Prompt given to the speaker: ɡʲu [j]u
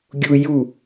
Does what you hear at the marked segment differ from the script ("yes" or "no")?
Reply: no